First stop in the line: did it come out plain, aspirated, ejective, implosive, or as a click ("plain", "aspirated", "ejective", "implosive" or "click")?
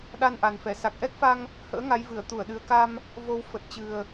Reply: implosive